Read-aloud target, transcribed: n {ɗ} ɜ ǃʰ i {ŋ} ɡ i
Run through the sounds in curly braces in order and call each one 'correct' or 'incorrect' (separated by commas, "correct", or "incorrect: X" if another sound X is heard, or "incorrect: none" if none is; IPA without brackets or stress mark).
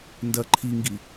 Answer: incorrect: d, correct